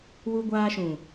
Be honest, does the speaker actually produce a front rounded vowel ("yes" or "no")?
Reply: no